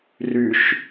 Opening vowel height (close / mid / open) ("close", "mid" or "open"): close